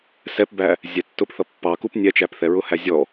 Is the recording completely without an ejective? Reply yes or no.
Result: yes